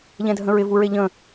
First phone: ʎ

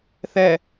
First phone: θ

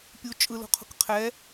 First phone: pʲ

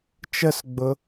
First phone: t͡ʃ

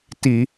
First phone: t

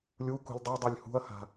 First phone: lʲ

